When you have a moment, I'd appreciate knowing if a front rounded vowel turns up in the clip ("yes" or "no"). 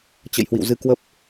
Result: no